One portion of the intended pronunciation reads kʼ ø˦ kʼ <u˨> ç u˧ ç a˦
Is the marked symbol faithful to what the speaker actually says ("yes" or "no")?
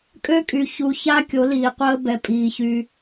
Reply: no